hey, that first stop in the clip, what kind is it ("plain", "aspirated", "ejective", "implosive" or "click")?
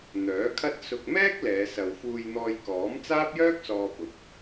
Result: aspirated